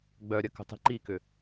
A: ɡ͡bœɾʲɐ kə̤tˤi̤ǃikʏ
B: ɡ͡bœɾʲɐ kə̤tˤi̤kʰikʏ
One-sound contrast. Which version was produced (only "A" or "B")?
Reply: A